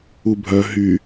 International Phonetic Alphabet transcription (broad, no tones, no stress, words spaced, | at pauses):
ubʱœ ɦy